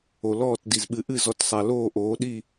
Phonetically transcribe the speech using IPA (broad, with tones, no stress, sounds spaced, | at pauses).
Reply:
o˩ l ɔː˧˩ t d i˩ z ɓ ɨ˩˧ ʔ ɨ˧˩ z ɔ˩˧ t sˤ a˩ l oː˧˩ ʔ oː˩˧ ɗ i˧˩